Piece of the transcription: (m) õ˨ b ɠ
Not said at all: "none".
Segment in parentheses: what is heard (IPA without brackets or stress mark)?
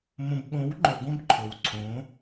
m